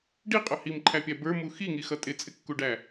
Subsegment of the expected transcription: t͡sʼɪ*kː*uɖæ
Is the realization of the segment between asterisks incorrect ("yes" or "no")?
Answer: no